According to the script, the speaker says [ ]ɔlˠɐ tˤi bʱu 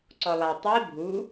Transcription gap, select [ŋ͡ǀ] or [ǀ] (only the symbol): ǀ